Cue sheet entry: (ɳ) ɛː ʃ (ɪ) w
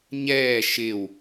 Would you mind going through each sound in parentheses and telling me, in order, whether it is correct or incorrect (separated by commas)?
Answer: incorrect, correct